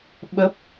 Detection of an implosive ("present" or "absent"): present